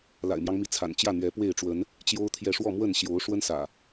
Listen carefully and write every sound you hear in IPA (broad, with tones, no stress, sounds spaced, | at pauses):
l a̰˨˩ ɪ̯ m j ɑ˦ ŋ m i˨˦ t͡sʰ a̰˨˩ n t͡ɕ j ä˥˨ n̪ ɥ ɛ˨˦ p w e˥˨ ɪ̯ ʈ͡ʂ w ə˨˦ n | t͡ɕ j o˦ ʊ̯ t̪ʰ j ɛ˥˨ ʂ w ɔ˥˨ m w ə˥˨ n ɕ j o˨˦ ʊ̯ ʂ w ə˦ n s ä̰˨˩